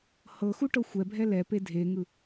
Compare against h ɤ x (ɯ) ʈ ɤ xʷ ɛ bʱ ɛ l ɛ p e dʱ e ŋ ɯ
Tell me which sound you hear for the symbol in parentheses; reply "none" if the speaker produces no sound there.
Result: u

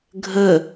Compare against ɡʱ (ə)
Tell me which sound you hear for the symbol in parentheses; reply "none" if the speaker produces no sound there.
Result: ə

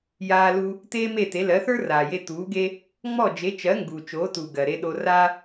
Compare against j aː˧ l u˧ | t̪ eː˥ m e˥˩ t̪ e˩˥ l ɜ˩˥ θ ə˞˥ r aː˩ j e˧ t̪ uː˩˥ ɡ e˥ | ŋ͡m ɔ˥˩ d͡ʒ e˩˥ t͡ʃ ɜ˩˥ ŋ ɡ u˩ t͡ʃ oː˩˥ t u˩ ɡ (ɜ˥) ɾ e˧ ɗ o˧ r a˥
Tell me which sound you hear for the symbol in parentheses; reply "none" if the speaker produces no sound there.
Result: ɜ˩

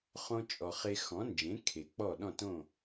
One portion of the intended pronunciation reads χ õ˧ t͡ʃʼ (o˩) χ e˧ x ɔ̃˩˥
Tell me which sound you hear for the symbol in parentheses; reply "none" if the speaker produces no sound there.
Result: ɔ˩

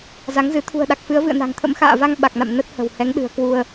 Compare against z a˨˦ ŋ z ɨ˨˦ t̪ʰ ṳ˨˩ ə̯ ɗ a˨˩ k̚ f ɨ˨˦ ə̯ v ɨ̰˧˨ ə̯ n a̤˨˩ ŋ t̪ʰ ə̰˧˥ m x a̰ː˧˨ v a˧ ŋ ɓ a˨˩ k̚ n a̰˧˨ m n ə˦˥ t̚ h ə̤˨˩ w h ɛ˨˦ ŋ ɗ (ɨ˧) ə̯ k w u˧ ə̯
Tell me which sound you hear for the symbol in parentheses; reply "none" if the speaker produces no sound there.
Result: ɨ̤˨˩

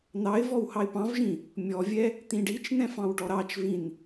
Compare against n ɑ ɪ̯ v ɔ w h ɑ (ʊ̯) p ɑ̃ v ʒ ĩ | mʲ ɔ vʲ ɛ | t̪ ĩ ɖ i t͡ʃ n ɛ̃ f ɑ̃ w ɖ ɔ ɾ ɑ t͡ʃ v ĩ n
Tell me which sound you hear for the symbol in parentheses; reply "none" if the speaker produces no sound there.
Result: ɪ̯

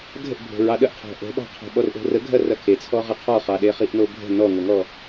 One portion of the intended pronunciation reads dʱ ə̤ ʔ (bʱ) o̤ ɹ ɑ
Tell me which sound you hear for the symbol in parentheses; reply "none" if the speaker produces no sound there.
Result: bʱ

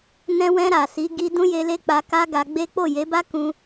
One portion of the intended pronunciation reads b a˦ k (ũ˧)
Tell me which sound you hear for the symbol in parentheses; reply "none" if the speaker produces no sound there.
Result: ũ˧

